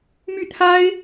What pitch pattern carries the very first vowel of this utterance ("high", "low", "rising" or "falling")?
falling